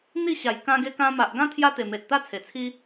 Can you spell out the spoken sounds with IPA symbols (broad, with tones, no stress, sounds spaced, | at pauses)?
n̪ i˥˧ ɕ a˨˩ j k ã˧ ɡ e˧ k ã˧ m a˨ ʔ ɡ ã˦ t̪ʰ j a˦ t̪ e˨˩ m e˨ t̚ t̪ a˦ t͡sʰ e˨˩ t͡sʰ i˦